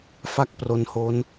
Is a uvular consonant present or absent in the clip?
absent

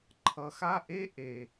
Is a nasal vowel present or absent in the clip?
absent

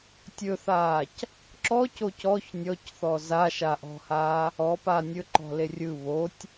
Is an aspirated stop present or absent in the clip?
absent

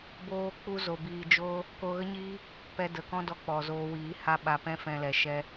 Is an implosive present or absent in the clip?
present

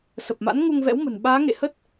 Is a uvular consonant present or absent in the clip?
absent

